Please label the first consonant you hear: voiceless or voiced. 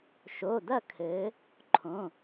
voiceless